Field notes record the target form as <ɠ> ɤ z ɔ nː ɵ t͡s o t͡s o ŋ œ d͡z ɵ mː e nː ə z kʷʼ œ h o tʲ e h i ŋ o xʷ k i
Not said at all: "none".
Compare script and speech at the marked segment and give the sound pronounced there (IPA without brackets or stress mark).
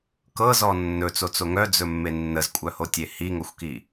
k